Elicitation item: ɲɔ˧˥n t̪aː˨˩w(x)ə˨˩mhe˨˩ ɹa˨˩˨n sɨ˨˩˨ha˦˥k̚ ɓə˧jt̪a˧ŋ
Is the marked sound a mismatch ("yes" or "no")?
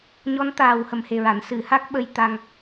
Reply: yes